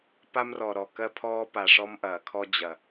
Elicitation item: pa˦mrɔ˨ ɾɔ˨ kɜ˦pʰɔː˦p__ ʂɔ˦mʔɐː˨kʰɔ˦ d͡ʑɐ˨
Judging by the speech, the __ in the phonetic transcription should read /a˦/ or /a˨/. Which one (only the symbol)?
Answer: a˨